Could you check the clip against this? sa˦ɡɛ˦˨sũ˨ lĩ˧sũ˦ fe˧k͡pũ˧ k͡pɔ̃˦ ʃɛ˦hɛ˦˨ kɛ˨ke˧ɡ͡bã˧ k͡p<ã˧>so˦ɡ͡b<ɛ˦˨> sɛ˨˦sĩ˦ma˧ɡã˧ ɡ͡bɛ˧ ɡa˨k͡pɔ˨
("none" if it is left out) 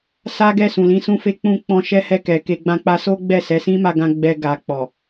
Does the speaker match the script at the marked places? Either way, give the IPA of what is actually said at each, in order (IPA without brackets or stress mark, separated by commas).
a˧, ɛ˦˨